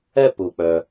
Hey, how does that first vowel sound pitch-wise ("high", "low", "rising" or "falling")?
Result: high